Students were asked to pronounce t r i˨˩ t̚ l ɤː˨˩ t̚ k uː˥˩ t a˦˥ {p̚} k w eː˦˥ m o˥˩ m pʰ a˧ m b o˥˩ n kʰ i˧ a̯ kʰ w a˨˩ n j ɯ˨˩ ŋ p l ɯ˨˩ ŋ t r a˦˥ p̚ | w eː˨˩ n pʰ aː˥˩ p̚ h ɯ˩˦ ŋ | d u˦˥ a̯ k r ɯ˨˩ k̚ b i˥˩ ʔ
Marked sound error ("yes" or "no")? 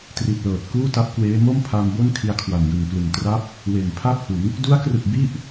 no